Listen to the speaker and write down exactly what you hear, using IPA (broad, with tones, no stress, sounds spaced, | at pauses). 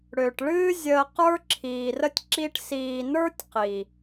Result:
ɽ ø˨ ʈ ɭ ɨː˦ zʲ əː˧ q ə˞˦ ǁʰ iː˨ r ə˦ tʲ ǁ i˧ ʈ s iː˨ n ə˞˦ tʲ q i˨